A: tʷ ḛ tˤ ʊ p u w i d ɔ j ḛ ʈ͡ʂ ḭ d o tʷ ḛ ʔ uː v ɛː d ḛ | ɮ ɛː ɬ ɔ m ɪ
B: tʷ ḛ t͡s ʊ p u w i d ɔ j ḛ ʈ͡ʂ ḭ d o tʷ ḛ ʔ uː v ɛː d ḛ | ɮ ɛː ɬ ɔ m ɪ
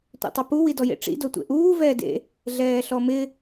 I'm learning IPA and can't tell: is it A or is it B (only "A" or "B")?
A